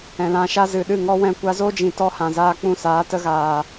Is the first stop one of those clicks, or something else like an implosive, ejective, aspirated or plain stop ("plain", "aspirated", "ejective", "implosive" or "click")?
implosive